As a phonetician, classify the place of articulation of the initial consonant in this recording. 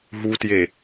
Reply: glottal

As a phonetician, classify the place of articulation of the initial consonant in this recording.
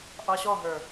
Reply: glottal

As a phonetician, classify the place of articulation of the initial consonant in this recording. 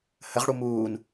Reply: glottal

